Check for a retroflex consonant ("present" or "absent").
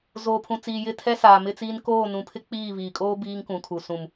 absent